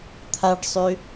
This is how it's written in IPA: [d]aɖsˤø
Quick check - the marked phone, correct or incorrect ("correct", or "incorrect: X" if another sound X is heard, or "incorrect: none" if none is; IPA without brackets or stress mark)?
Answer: incorrect: t̪ʰ